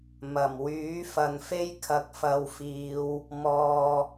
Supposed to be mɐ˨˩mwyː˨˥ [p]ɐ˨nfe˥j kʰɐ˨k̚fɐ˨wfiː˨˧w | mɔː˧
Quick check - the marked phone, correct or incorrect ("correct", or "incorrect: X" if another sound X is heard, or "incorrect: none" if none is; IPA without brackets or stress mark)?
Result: incorrect: f